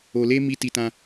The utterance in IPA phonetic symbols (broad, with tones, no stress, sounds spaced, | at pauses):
o˧ l e˦ m i˦ t i˧ t ã˧